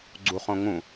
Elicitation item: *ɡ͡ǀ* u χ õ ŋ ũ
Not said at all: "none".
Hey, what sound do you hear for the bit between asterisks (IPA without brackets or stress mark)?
ɡ͡ǀ